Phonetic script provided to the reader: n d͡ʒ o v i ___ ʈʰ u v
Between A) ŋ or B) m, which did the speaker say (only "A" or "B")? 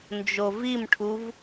B